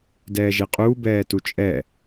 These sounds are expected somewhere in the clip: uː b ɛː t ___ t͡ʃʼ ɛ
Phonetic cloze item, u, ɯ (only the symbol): u